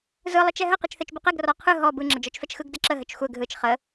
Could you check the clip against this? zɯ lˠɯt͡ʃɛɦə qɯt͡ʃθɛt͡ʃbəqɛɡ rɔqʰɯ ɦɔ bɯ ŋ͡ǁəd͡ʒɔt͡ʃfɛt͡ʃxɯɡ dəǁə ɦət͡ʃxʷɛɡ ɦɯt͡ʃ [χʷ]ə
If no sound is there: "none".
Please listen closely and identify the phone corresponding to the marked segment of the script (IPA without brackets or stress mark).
χ